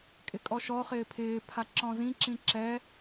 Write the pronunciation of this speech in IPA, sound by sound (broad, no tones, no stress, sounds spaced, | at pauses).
kʼ ɪ kʼ ɔ ʃ ɔ χ ɪː pʰ ɪː pʰ a ǁ ɔ̃ z ĩ ǁ ĩ ǁ ɛ